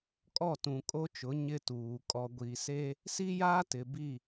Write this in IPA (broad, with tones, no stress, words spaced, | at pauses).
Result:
kʼɔ˦˨ tũ˨kʼo˦t͡ʃʊ˨˦ ɲɪ˦tuː˨ kʼɔ˨ɡʷiː˨se˦ | si˦jaː˦ tɪ˨bi˦˨